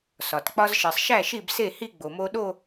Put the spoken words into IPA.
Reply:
s ɒ˩ t k͡p ɒ˧ z ʃ e˩ sˤ ʃ æ˥˩ ʃ i˥˩ b s e˥˩ h i˥˧ ɡ͡b o˩ m o˧ ɗ o˥˧

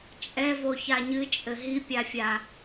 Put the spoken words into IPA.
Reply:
t͡ʃʼ ɛ v o ç a ɲ ɨ t͡ʃʼ ɘ ɦ i pʲ a fʲ a

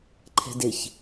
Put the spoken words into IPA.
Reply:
ǃʰ ɛ̤ d ɪ ç

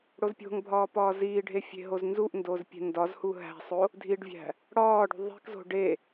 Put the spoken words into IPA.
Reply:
ɽ o z pʲ o̤ ŋ bʱ ɒː p ɒː z iː ɖʱ e fʲ e̤ ɦ o z n z u ʔ n d o z pʲ e̤ n d ɒ z h u ɦ æ̤ sˤ o | dʱ i ɖ vʲ æ̤ | ɽ ɒː ɖ ṳ ðˤ i̤ k z o̤ ɖ e

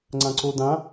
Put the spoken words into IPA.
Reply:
ŋ͡ǀ ã ǀ o d ã

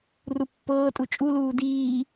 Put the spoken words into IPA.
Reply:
r u pː ɤː tʼ u t͡ʃʼ u l uː d iː

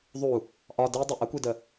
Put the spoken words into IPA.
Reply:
ðˤ u | ʔ ɒ d i dˤ u ʔ ə kʷ i d ə

